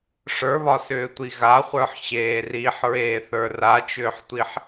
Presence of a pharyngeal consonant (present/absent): present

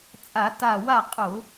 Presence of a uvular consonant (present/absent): present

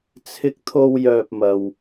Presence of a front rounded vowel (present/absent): present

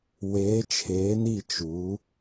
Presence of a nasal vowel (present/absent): absent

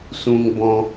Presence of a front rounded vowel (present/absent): absent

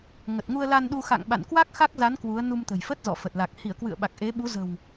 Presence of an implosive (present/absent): present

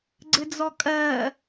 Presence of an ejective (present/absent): present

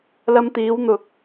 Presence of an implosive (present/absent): absent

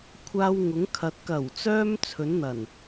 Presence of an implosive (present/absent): absent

